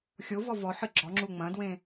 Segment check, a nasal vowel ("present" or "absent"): present